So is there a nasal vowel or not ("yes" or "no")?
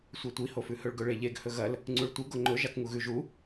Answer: no